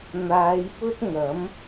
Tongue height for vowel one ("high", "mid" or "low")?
low